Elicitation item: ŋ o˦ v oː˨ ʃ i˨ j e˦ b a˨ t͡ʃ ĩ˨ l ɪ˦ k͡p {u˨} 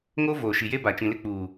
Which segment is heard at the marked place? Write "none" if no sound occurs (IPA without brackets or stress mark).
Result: uː˨